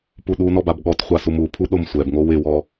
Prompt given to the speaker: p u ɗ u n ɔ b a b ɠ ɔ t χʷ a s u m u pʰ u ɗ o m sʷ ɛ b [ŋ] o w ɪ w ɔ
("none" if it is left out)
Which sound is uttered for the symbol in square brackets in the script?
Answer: ŋ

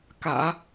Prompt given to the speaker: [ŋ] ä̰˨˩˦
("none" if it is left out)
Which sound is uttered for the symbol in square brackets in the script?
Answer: k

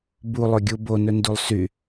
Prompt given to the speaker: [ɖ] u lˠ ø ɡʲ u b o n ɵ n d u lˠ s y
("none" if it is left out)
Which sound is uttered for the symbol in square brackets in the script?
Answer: b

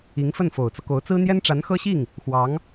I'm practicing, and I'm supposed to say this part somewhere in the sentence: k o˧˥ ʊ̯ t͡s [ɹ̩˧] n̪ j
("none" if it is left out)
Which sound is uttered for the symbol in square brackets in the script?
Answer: ɹ̩˥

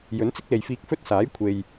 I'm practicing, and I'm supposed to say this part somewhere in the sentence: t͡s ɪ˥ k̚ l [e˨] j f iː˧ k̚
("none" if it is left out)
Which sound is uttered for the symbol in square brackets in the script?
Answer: e˨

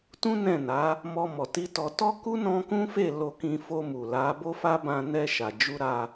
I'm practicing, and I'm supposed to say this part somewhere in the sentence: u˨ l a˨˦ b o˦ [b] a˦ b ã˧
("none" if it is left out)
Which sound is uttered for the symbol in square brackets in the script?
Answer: f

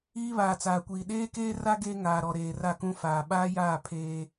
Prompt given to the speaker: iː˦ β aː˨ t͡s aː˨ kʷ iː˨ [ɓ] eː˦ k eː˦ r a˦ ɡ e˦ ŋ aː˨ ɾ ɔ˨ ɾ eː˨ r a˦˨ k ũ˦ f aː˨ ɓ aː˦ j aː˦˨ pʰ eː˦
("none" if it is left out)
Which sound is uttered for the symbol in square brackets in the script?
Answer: ɗ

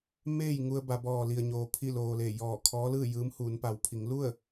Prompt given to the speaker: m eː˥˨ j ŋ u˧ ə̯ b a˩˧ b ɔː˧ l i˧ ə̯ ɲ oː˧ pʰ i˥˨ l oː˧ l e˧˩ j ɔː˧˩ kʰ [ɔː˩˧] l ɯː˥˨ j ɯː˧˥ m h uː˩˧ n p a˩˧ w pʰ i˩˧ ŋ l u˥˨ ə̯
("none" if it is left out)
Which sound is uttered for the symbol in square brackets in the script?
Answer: ɔː˧˥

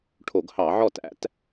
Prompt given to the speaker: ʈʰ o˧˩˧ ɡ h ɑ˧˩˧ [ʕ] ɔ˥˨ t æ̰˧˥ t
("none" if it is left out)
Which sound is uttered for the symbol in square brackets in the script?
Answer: ʕ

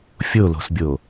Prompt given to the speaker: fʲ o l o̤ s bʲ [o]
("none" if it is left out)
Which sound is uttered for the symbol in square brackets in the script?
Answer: o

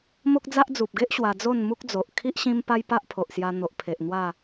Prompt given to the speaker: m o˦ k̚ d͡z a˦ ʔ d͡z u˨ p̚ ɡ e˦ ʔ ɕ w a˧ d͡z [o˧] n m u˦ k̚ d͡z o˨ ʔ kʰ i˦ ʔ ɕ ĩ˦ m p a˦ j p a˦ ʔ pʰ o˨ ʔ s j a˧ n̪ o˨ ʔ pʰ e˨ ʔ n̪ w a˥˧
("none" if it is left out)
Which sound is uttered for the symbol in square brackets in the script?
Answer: o˥˧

